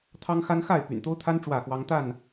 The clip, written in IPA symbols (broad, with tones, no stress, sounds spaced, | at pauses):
t̪ʰ ɑ˦ ŋ x a˦ n x a˥˨ ɪ̯ p y̰˨˩ n t̪ o˦ ʊ̯ t̪ʰ a˦ n ʈ͡ʂ w ä˥˨ x w ɑ˦ ŋ t̪ a˥˨ n